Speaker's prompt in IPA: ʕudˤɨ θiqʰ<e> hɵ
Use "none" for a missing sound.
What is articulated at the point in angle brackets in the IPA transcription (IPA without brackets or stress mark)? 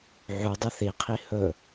i